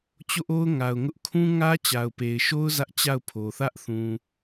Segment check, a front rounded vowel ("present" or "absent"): absent